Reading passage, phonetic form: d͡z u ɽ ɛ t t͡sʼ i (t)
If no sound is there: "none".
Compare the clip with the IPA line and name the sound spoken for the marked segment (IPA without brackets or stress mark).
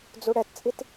t